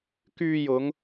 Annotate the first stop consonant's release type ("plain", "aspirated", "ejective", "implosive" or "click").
plain